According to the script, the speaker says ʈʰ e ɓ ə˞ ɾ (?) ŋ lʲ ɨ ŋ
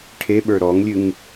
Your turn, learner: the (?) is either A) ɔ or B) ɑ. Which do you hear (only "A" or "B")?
A